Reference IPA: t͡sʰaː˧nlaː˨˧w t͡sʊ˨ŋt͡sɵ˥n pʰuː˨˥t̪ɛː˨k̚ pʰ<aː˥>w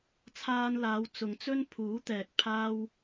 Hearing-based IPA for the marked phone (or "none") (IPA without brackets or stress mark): aː˥